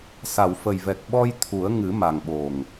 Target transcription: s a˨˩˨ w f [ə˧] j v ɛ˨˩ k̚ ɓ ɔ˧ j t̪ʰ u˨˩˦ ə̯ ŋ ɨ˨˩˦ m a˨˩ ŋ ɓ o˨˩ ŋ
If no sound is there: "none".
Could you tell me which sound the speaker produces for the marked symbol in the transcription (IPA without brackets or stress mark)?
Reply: ə˨˩